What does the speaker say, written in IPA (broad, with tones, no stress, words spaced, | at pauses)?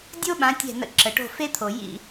dʲo˥ɓã˩˥ tʲɛ̤˥˩nə̰˥ ǁə˩ʈo̤˥˩fe˥t̪ʰo˩ jḭ˥˩